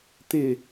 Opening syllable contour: falling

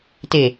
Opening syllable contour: low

